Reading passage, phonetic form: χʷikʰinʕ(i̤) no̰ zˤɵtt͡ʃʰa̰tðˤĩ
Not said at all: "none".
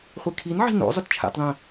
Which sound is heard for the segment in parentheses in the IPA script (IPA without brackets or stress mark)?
i̤